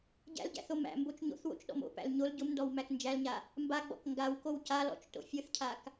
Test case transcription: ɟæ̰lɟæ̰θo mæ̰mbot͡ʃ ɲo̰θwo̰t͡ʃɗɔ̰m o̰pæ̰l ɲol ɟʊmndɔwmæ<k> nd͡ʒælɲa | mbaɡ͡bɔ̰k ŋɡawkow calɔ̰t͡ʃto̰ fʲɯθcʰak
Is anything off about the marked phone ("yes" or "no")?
no